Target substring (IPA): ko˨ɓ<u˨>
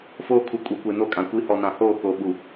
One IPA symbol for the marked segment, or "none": u˨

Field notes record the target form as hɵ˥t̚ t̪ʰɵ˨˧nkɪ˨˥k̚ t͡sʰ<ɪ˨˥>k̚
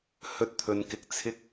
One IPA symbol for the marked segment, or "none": ɪ˥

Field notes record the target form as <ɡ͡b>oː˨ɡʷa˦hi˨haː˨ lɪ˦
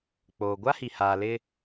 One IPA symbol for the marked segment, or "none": k͡p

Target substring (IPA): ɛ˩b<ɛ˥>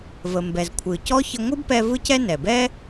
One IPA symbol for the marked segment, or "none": ɛ˥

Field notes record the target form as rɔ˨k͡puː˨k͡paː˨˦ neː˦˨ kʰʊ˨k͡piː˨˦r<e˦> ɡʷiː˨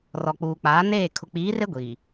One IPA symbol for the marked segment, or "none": e˦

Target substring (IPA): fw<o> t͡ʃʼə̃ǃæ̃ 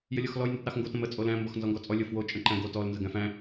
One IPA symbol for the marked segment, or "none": o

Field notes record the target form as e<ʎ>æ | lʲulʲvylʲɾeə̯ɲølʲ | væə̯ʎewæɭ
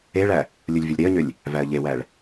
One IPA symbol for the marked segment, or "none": ɭ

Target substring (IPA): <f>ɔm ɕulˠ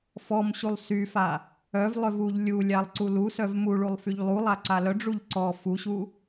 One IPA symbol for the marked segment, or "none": f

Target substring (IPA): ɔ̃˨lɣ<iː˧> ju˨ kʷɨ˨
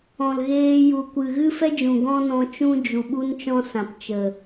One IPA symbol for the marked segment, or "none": eː˧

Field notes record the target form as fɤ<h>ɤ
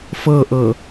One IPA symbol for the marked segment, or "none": ʔ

